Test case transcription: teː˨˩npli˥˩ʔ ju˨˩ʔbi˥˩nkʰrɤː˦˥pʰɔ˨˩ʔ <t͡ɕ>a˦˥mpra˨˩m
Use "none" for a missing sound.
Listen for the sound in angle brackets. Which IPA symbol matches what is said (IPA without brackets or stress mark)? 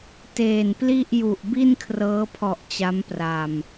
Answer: t͡ɕ